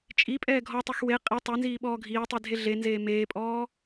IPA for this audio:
t͡ʃʼ i pʼ ɛː ɡʱ ɔ tˤ e x w e qʼ i tˤ e n z iː ɓ ɔː ɡʱ iː tˤ i dʱ e ɮ e n z eː m eː pʼ ɔː

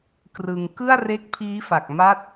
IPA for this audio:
k r ɯ˧ ŋ k ɯ˥˩ a̯ r e˦˥ k̚ pʰ iː˦˥ f a˨˩ k̚ m a˦˥ t̚

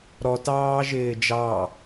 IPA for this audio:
ɾ ɔ t ɑː ʒ ɪː d͡ʒ ɑ

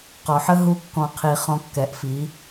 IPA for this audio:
q ɔ˨ ħ ə˦ ɦ u˧ kː ɔ̃˨ qʰ i˨ χ ɔ̃˧ kː ɛ˨ ʔ f i˨˦

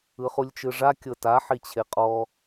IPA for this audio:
ɯ χ u lʲ t͡ʃ ɯ ʐ a kʲ ɤ t a ħ i t͡ɕʰ e qʼ ɔ

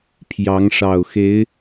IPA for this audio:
pʰ j ɑ˧˥ ŋ ʂ ɑ˨˩ ʊ̯ x e˧˥ ɪ̯

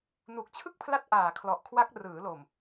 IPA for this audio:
n u˨˩ k̚ t͡ɕʰ ɯ˥˩ k̚ pʰ l a˦˥ t̚ ʔ aː˨˩ kʰ l ɔ˨˩ ʔ kʰ w a˦˥ k̚ r ɯː˩˦ l o˨˩ m

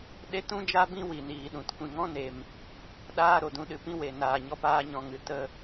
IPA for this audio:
ɗ e˦ t ũ˦ d͡ʒ a˦ b ĩ˦ w i˨ n iː˨ ɗ ũ˨ t kʷ ĩ˨ ŋ ɔ̃˦ n e˨ m | ɗ aː˧ ɾ o˨ d ũ˧ ɗ ɨ˧ p ĩ˦ w e˨ n aː˨ ɲ ɔ˧ p aː˦ ɲ ɔ̃˧ ŋ ɨ˨ t ə˧

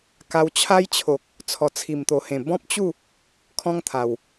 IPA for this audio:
k a˧ w t͡ɕʰ a˦ j t͡ɕʰ o˨ k̚ | t͡sʰ ɔ˨˩ t͡sʰ i˨˩ m t̪ o˨˩ h ẽ˨˩ b ɔ̃˦ p̚ t͡ɕ u˥˧ | kʰ ɔ̃˦ ŋ t̪ʰ a˨˩ w

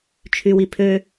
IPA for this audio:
t͡ʃʰ y w i pʰ ø

